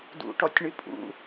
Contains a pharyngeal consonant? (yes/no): no